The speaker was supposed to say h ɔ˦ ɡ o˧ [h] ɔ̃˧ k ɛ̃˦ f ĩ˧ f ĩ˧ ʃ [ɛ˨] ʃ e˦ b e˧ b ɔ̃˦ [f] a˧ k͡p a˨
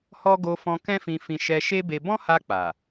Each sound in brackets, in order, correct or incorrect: incorrect: f, incorrect: ɛ˧, incorrect: h

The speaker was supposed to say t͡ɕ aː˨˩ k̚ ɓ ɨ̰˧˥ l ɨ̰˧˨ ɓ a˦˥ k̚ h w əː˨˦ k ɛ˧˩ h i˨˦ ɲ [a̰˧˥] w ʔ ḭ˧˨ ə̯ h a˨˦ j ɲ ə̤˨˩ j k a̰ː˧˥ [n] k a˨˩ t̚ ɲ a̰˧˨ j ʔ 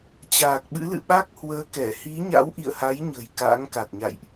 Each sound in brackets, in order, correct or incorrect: correct, incorrect: ŋ

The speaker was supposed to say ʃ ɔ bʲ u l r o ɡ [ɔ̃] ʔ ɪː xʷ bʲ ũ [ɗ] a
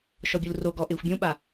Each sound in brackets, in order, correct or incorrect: incorrect: ɔ, incorrect: ɓ

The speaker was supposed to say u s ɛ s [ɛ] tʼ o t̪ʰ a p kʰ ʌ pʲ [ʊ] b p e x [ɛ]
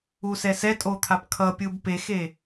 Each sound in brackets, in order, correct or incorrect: correct, incorrect: ɯ, incorrect: e

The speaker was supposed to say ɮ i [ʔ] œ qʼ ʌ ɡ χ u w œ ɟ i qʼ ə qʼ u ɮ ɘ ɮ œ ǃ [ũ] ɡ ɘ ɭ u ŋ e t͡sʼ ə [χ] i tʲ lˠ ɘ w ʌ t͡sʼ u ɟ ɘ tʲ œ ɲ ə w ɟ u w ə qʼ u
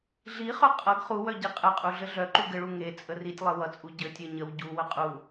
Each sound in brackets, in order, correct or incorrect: incorrect: χ, incorrect: u, incorrect: r

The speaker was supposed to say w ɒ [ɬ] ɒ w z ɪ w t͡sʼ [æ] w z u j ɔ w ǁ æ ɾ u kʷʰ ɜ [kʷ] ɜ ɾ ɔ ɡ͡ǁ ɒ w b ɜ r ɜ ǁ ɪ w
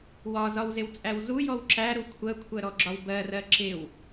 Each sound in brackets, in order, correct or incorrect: incorrect: z, correct, incorrect: kʷʰ

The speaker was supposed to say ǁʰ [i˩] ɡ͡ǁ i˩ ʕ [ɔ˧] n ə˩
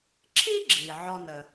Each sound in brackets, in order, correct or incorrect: incorrect: i˥, correct

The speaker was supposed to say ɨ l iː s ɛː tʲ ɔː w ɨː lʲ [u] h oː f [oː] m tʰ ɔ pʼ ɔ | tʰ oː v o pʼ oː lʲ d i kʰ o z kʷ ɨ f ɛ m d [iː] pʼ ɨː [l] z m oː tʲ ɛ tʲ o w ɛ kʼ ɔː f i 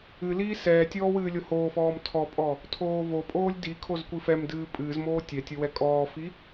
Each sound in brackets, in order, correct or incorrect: incorrect: o, incorrect: ɔː, incorrect: ɨː, incorrect: none

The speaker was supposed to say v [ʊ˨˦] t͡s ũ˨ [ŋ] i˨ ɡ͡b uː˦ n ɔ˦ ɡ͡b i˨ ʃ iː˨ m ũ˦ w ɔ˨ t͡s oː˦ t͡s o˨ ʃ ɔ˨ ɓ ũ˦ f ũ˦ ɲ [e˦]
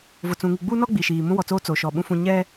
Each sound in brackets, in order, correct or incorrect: incorrect: ʊ˨, correct, incorrect: ɛ˦

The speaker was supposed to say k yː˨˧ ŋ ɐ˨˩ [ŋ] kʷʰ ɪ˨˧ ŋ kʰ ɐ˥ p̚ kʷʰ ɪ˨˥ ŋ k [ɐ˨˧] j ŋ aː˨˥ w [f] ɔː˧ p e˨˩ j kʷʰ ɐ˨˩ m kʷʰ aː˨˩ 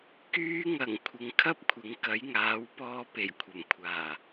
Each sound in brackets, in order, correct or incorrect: correct, incorrect: ɐ˨˥, incorrect: p

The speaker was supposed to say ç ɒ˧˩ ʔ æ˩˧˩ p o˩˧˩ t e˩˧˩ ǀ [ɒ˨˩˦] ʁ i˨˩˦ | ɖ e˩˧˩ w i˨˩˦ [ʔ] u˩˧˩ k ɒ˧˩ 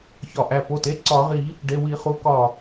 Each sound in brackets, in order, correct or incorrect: correct, incorrect: χ

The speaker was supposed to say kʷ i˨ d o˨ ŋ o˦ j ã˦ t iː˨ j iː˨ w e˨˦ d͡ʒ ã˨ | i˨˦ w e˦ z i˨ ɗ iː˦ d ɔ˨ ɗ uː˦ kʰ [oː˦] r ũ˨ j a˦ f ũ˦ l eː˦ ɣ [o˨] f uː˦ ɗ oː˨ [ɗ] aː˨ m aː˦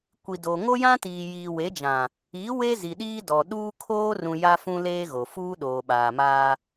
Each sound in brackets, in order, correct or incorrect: correct, correct, incorrect: ɓ

